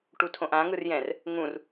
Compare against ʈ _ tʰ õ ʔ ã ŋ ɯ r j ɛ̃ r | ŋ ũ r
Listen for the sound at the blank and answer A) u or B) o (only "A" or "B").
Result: A